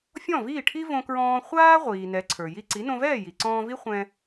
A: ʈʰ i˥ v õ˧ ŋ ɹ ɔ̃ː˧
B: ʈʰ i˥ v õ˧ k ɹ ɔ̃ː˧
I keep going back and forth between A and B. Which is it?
B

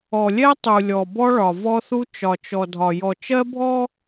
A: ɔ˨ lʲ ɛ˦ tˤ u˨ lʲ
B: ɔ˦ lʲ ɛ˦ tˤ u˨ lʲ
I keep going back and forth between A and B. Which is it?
A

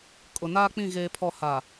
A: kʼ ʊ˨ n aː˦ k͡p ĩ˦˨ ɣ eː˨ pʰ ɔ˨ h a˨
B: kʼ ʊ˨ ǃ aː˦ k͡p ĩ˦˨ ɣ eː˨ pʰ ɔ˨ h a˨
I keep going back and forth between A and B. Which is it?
A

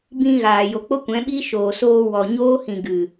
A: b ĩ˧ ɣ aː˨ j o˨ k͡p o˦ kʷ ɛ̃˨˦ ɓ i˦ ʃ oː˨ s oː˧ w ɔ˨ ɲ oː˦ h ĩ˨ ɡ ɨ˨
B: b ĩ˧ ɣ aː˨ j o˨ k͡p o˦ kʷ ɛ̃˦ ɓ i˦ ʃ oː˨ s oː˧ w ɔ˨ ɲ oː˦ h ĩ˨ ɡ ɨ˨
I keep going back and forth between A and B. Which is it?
A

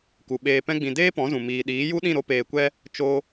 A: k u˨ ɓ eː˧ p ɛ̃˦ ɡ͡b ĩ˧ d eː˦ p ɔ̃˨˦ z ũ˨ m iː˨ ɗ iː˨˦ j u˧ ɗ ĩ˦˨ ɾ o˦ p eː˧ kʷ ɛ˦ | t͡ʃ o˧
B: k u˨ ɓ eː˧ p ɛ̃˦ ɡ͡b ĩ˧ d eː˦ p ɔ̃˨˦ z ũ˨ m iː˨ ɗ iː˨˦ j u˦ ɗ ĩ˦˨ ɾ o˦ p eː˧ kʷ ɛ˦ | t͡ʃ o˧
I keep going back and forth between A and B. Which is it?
B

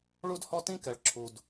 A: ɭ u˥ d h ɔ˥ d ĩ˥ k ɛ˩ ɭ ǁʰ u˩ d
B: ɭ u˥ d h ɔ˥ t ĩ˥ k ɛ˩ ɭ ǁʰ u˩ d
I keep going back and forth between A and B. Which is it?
B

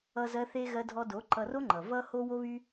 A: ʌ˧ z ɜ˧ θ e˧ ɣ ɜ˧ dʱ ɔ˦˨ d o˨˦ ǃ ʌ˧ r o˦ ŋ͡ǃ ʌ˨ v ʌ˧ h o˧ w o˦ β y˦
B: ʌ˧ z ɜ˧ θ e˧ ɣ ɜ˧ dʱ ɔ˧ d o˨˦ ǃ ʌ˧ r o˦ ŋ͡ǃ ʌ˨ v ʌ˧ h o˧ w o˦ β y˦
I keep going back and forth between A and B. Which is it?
B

